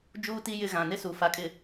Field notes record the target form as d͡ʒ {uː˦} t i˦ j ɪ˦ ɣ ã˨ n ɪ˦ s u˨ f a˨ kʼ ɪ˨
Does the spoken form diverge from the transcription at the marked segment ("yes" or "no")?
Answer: no